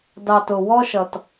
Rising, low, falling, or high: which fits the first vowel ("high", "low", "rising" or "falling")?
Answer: low